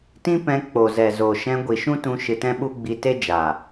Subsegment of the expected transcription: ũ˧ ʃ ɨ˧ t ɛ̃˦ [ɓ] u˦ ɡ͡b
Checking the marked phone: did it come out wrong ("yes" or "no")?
no